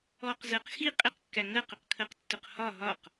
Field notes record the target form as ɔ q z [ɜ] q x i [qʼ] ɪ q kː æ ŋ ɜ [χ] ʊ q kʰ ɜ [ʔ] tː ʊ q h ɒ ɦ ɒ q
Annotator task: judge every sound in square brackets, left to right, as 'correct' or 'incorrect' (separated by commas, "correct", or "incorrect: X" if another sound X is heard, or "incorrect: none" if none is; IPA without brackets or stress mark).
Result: correct, correct, incorrect: q, incorrect: q